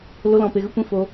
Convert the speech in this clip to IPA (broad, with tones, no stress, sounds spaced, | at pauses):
l o˦ l ɔ̃˧ p e˧ ɣ ə˦ kʷ ĩ˦ f o˦